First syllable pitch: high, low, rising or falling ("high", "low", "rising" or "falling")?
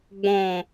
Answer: low